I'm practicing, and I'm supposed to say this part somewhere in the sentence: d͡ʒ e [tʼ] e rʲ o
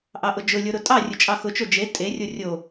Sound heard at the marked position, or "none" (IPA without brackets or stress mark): tʼ